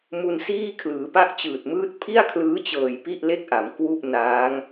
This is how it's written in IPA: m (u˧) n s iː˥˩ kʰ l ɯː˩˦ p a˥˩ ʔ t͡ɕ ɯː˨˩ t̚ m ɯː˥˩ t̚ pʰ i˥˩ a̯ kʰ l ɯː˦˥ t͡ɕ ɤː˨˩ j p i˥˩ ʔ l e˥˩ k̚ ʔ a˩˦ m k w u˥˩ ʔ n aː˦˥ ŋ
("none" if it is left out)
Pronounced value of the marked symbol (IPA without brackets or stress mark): u˧